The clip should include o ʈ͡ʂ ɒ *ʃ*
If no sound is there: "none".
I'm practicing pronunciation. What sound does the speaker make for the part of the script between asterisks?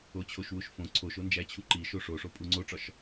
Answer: ʃ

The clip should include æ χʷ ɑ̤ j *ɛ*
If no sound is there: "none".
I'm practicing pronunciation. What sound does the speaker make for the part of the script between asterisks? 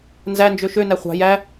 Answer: æ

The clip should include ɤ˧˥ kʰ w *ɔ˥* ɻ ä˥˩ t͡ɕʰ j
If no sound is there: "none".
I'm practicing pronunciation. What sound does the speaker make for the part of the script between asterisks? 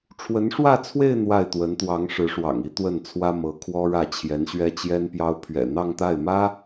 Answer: ɔ˥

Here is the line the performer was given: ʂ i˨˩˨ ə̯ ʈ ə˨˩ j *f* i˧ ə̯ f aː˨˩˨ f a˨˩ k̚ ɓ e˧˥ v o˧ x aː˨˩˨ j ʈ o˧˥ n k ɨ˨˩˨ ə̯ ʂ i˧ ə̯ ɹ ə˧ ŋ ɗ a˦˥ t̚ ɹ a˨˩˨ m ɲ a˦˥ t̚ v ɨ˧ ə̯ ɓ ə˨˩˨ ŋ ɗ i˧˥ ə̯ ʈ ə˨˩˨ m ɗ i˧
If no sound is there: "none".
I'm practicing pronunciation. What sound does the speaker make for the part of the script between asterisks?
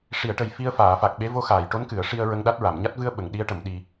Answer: f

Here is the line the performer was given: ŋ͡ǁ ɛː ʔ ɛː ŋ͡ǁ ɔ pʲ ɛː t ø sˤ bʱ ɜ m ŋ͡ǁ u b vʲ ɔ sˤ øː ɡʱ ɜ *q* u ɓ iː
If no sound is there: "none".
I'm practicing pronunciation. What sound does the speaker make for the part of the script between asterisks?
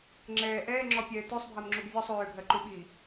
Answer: ǃ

